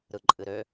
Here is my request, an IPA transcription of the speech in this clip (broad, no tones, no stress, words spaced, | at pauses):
ɾɯǃʼɨɾø